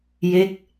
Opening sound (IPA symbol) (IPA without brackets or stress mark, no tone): j